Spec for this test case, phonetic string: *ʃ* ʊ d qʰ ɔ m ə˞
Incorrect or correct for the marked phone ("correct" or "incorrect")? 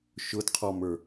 correct